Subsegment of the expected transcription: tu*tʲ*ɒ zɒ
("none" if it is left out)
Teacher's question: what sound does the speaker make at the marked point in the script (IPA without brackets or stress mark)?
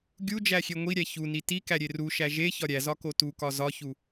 k